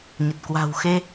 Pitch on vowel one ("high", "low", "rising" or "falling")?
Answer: low